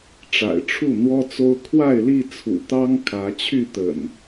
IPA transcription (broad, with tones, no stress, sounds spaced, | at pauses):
ʈ͡ʂ a̰˨˩ ɪ̯ ʈ͡ʂʰ u˥˨ n̪ w ɔ˦ t͡s o˦ ʊ̯ kʰ w a˥˨ ɪ̯ l i˥˨ t͡sʰ ṵ˨˩ t̪ ɑ˦ ŋ kʰ ä˨˦ t͡ɕʰ y˥˨ t̪ ə̰˨˩ n